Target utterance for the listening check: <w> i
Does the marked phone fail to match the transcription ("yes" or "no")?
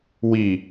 no